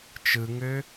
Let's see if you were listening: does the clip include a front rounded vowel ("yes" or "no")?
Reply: yes